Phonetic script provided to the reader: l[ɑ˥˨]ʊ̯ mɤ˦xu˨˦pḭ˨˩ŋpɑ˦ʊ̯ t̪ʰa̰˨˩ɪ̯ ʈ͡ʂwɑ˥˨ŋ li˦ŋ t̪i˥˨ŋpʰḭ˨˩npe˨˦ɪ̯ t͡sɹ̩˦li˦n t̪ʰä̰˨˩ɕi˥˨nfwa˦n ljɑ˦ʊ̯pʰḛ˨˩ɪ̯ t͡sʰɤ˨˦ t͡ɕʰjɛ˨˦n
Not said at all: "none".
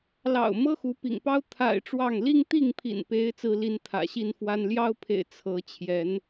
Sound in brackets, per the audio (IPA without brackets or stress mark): ɑ̰˨˩